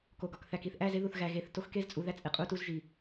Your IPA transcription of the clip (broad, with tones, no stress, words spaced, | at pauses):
ko˨ɡɒ˨k θæ˨ki˦θʔæ˦ze˦ ðu˨θɣæ˨ɣe˨θ to˦xke˦zt͡sʼu˨ ðæ˦t͡sʼe˨ qʼu˦tu˦zʒi˨